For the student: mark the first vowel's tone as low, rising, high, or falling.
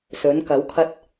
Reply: rising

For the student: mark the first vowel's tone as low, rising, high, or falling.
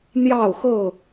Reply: falling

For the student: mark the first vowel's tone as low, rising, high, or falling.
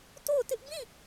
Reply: falling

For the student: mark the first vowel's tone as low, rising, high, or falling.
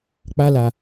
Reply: high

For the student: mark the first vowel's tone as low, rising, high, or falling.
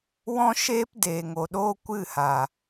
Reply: high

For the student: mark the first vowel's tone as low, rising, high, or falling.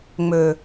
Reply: low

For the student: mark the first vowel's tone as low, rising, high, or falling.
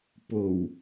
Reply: low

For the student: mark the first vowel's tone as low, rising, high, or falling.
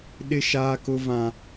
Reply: high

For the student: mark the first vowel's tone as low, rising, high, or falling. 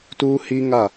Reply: high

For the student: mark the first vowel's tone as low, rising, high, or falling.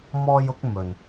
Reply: high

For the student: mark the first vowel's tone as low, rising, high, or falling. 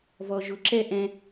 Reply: low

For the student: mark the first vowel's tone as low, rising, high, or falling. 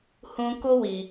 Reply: high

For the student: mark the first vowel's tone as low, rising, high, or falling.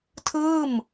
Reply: falling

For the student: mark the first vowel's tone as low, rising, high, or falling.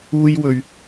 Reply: high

